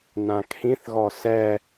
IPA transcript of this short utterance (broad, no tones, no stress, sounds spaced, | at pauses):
n ã kʰ ĩ θ ɣ ɔ s ɛ